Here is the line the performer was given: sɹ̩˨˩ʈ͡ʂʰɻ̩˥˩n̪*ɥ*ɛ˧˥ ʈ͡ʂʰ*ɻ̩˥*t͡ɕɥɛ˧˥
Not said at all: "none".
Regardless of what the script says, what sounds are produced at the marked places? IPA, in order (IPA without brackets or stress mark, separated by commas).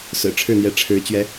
j, ɻ̩˧˥